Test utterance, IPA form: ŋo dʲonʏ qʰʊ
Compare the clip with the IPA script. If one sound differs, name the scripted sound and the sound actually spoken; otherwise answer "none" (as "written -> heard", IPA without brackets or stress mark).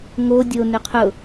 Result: none